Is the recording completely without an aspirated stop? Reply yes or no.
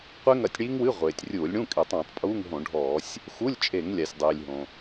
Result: yes